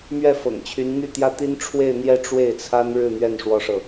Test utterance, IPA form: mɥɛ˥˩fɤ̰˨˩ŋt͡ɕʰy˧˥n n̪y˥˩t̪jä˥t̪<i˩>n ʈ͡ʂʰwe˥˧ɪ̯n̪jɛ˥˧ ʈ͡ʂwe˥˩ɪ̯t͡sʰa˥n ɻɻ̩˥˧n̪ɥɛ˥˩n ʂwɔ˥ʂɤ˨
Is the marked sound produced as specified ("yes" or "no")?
no